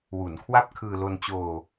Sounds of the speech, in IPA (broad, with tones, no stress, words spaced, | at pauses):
wu˩˦nkʰwa˥˩p̚kʰɯː˧lo˧n t͡ɕoː˧